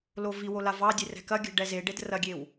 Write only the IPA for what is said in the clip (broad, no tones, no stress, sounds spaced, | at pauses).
l o v i w o l a v ɑ dʲ e r ɛ̤ k ɐ ɡʲ ə̤ ɖ ɛ z e ɖ e d r ɐ ɡʲ e w